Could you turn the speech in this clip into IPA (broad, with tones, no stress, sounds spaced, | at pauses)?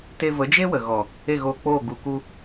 t e˧ v ə˨˦ d͡ʒ e˦ w ə˨ ɣ ɔ˨ | e˦˨ ɣ oː˧ k͡p oː˦˨ ɡ u˧ k u˧